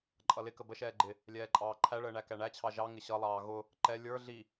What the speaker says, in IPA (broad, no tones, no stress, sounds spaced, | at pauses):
ǃʼ ʌ l ɪ k ə b ə ʃ ɛː ɡ͡ǃ ɪ | lʲ ɛː ǃʼ ɑː ǃʰ æ ɭ əː ɳ æ k æ ɳ æ t͡ɕʰ ɑ ʒ ɑ ŋ ɪ ɕ ʌ lˠ ɑː ɣ ʊ | ǃ ɛ lʲ ə˞ ɮ i